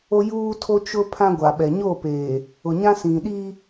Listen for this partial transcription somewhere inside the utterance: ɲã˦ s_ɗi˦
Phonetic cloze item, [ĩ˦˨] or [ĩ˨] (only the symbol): ĩ˨